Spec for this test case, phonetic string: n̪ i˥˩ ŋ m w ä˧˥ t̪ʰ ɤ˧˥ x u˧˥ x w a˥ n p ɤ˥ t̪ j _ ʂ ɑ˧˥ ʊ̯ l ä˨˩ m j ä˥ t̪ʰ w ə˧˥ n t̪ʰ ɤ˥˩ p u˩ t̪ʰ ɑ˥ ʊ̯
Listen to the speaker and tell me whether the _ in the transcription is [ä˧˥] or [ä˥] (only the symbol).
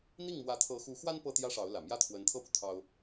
ä˥